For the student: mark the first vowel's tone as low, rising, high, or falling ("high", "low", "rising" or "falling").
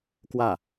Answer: falling